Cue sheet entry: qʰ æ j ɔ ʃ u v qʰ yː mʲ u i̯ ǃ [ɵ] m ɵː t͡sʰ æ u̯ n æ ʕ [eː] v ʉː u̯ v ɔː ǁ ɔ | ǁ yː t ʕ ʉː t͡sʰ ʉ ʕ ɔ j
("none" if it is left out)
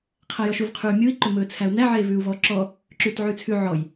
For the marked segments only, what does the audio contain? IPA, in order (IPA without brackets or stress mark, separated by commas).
ɵ, eː